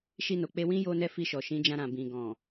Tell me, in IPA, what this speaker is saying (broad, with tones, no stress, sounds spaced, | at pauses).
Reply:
ʃ i˧ n o˨ k͡p e˧ w ĩ˦ j o˦ n ɛ˦ f i˧ ʃ ɔ˨ ʃ ĩ˨˦ d͡ʒ ã˧ ɾ ã˨ b ĩ˨ ɡ ɔ̃˨